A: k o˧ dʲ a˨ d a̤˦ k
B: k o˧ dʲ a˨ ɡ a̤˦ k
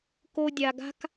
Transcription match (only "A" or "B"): B